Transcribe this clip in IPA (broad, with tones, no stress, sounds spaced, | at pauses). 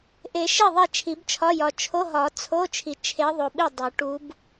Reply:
ʔ e˨˩˦ ʃ e˥˩ ðˤ e˥˩ t͡ʃʰ i˨˩˦ b t͡ʃʰ ɒ˧˥˧ j ɒ˨˩ t͡ʃʰ o˧˥˧ ɦ ɒ˨˩˦ t͡sʰ o˧˥˧ t͡ʃʰ i˨˩ t͡ʃʰ e˧˥ ðˤ o˨˩ ɓ i˥˩ dˤ o˨˩˦ ʈ u˧˥ b